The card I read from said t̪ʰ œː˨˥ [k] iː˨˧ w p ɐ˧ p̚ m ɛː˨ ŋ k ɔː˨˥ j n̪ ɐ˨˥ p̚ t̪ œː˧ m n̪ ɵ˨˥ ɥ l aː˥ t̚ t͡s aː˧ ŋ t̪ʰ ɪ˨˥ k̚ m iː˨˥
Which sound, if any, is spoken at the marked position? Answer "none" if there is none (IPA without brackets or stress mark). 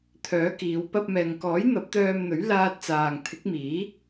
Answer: k